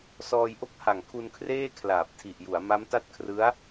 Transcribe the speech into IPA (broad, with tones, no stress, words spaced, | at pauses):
sɔː˧jʔo˥˩k̚ha˨˩ŋ kʰu˧nkʰreː˥˩ kʰlaː˨˩p̚tʰi˨˩ʔju˩˦a̯ ma˦˥mta˥˩t̚kʰrɯ˦˥a̯